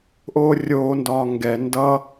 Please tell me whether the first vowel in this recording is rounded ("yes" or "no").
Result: yes